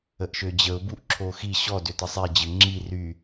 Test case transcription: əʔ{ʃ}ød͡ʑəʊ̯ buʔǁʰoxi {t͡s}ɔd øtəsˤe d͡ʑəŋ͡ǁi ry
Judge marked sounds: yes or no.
yes, no

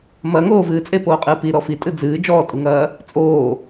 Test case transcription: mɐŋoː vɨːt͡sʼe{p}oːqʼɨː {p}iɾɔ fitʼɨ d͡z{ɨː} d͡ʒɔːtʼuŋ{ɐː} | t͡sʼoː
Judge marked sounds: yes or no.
yes, yes, yes, yes

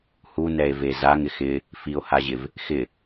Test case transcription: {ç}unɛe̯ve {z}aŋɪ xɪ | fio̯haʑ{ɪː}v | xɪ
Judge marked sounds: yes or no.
no, yes, no

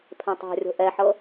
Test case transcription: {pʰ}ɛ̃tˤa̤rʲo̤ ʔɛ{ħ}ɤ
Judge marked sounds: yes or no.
yes, yes

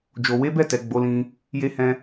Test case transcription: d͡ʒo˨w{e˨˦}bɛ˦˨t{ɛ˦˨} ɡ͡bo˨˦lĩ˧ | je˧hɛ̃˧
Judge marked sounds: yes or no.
yes, no

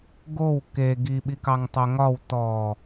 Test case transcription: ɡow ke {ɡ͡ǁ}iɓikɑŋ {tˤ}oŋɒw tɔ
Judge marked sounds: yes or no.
no, yes

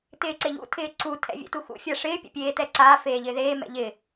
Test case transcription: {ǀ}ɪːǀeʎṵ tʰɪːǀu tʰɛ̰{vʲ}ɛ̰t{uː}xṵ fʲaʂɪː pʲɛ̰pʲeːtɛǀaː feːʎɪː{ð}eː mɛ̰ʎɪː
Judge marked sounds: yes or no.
no, yes, no, yes

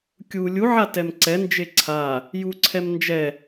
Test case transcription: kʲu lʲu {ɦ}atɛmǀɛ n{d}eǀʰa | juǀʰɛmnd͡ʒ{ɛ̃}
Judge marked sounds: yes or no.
no, no, no

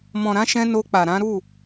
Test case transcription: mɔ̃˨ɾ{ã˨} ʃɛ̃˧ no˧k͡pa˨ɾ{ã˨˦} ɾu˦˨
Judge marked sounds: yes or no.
no, yes

